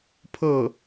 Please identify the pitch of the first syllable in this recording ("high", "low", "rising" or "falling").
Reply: falling